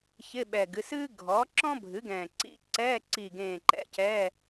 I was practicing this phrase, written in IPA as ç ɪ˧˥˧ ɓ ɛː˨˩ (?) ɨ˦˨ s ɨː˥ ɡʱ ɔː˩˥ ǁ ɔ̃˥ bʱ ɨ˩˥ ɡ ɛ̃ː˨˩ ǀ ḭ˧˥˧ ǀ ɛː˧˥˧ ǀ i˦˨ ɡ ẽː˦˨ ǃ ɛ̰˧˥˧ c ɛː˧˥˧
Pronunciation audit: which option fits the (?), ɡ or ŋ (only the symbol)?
ɡ